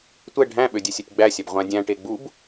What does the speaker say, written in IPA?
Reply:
tʷ ɛ ɖʱ æ̃ ɓ ø dʲ ɛ sʲ œ tʲ ɡ͡b æ sʲ æ b ʁʷ ã dʲ æ̃ ʈ e ɡ͡b u b

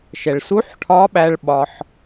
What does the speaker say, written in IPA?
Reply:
ʃ ɛ˩ ɭ s u˧˥ ħ ʈʰ ɒː˧˥ ɓ æ˧ ɭ ɓ ɒ˧ ħ

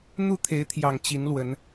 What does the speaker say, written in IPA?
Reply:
n̪ u˥˨ t̪ʰ e˨˦ ɪ̯ t̪ʰ j ɑ˨˩ ŋ t͡ɕ i˨˦ n l w ə˨˦ n

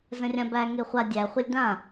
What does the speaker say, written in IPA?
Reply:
z ə̃ rʲ ã b æ ŋ e χʷ a dʲ æ χʷ ə lʲ d ã

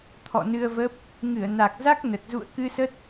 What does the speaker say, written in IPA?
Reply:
t̪ʰ ɔ̰˧˨ n ɨ˧ ə̯ v ə˦˥ p̚ | ŋ ɨ˧˩ ə̯ n a˨˩ k̚ z a˦˥ k̚ n ə˨˩ t̚ z ṵ˧˨ ə̯ k ɨ˧ s ə˦˥ t̚

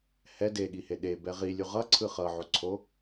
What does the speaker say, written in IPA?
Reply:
h ɛ d e ɠ i h e ɗ e b ɛ ʁ i lʲ u ʁ ʌ ǀʰ ɯ χ ʌ ʕ o ǀʰ o

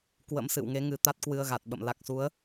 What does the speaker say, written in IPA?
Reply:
k w ə̰˧˥ m s ɨ̰˧˨ w ŋ e˨˦ ŋ ɨ˨˩ t̪ a˦˥ t̚ k w ɨ˧ ə̯ ɣ a˨˩ t̚ ɓ ə̰˧˨ m l a˨˩ k̚ s u˨˦ ə̯

